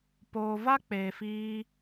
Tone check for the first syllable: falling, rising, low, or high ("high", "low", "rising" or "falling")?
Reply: low